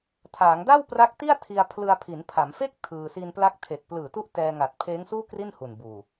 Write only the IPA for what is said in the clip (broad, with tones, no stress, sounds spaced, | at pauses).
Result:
tʰ aː˩˦ ŋ d a˥˩ w p r a˦˥ k̚ t i˥˩ a̯ tʰ i˧ a̯ pʰ l ɯ˧ a̯ pʰ i˩˦ n pʰ a˩˦ m f e˥˩ k̚ tʰ ɯː˧ s i˧ n p l a˦˥ k̚ tʰ e˨˩ k̚ p l ɯː˨˩ t u˦˥ ʔ t ɛː˧ ŋ a˨˩ t̚ pʰ eː˦˥ ŋ s uː˥˩ k r i˥˩ n h u˨˩ n b uː˨˩